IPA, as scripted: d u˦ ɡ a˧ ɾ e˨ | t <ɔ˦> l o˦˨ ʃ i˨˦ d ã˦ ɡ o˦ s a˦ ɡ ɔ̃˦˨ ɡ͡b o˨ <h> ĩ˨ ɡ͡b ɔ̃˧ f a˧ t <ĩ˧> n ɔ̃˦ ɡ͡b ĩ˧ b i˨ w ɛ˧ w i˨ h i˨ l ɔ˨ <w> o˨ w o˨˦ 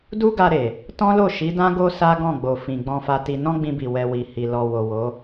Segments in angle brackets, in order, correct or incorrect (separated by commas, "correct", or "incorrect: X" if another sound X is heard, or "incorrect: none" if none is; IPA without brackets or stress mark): incorrect: ɔ̃˦, incorrect: f, incorrect: i˧, correct